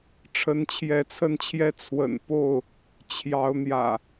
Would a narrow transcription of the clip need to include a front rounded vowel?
no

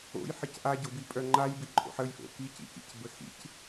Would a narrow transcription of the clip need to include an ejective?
yes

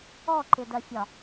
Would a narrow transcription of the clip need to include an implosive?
no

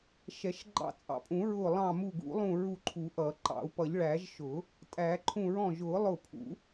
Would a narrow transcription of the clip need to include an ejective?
yes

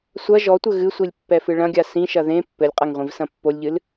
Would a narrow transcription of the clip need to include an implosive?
no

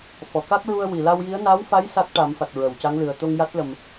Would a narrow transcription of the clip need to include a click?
no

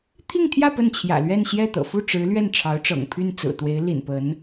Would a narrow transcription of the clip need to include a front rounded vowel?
yes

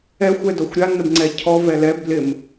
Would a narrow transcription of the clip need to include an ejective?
no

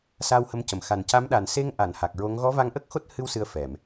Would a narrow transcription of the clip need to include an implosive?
yes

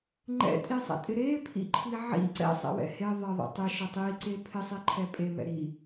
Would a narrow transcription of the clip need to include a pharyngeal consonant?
yes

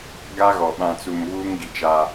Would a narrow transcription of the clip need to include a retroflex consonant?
no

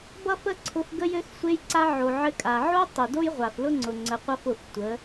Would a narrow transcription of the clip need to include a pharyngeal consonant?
yes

